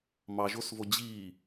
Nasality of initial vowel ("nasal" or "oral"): oral